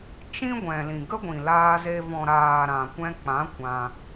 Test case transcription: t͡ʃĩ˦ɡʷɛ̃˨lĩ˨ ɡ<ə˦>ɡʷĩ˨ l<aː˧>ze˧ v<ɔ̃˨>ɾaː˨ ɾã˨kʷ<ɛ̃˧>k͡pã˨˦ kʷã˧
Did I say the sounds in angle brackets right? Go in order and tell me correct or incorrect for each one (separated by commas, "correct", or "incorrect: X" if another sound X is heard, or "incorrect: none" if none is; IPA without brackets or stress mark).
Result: correct, correct, correct, correct